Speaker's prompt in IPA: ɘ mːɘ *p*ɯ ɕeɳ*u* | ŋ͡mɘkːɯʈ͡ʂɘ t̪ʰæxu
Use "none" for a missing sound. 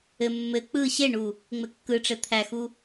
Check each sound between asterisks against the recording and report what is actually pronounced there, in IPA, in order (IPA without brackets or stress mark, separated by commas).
k͡p, u